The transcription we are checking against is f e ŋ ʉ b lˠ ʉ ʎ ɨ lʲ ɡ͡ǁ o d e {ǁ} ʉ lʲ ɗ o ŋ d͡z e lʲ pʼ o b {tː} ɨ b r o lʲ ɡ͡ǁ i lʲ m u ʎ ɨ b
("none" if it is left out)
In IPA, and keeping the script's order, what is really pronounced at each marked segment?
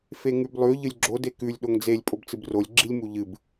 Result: k, t͡s

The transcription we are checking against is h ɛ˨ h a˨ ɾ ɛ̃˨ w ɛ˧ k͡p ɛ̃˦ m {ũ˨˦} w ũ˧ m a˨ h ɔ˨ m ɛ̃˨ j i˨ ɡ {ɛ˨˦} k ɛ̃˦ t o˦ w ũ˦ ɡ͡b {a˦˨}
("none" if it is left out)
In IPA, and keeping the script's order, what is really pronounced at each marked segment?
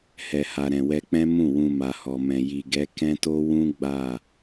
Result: ũ˦˨, ɛ˨˦, a˦˨

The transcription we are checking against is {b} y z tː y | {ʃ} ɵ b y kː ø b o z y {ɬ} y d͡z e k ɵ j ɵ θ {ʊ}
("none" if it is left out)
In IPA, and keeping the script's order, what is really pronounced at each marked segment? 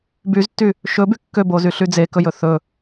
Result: b, ʃ, ɬ, ɵ

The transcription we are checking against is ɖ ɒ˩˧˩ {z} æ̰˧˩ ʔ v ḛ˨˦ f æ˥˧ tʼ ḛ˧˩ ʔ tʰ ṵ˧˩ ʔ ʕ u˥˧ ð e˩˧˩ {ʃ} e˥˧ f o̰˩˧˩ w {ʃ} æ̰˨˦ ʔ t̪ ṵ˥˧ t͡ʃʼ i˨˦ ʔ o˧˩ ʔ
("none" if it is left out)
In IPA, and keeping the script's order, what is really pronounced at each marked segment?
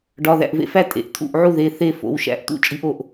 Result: ð, θ, ʃ

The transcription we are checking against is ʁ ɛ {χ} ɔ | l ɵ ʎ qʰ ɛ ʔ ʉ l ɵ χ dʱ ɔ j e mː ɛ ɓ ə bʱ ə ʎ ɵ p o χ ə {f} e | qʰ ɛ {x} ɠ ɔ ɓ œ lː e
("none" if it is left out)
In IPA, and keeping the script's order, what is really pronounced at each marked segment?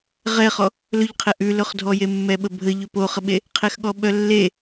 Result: χ, ɓ, x

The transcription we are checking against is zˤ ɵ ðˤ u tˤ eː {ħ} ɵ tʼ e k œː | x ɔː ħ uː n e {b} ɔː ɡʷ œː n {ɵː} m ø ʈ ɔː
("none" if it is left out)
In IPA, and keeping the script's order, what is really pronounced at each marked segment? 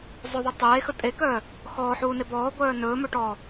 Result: x, b, ɵː

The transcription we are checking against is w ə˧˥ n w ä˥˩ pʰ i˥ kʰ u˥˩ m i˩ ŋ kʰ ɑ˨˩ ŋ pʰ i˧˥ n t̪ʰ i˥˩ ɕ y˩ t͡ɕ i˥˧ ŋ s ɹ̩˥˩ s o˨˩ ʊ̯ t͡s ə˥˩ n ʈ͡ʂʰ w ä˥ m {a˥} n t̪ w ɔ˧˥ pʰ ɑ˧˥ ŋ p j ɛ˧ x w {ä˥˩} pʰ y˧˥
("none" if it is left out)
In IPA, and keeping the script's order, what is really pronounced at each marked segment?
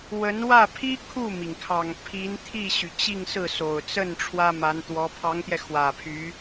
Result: a˧˥, ä˨˩

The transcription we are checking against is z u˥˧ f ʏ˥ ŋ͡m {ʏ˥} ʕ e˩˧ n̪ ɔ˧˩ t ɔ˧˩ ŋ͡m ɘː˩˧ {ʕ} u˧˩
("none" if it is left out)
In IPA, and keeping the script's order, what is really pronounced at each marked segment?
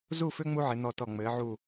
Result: u˥, ʕ

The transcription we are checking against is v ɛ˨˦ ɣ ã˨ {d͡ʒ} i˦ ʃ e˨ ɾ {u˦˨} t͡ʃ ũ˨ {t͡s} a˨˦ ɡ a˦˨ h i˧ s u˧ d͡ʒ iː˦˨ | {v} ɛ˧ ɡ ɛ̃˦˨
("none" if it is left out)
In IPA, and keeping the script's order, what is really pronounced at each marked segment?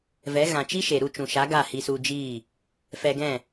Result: t͡ʃ, u˦˨, ʃ, f

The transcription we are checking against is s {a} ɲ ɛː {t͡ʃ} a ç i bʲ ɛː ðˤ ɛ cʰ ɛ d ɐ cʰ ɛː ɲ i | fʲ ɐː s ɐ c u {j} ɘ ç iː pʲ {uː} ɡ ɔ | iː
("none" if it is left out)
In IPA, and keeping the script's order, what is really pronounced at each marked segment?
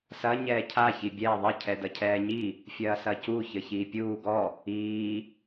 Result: ɐ, cʰ, ç, uː

